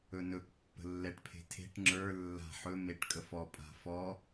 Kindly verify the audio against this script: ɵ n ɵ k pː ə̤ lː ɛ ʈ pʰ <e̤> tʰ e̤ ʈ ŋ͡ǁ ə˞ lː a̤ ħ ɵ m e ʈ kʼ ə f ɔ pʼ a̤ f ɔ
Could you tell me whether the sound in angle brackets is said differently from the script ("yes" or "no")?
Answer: no